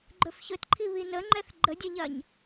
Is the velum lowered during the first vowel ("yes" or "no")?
no